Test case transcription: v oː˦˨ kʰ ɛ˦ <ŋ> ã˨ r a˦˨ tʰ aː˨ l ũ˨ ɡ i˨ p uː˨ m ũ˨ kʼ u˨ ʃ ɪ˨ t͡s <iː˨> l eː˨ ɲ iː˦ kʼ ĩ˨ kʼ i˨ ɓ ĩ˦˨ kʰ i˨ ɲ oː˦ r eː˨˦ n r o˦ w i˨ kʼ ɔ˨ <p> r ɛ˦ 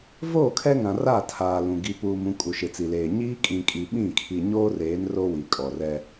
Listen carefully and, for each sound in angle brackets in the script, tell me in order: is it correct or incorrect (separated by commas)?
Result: correct, incorrect, incorrect